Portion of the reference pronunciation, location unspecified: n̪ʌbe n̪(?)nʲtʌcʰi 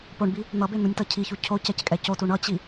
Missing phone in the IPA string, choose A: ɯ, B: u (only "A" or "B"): B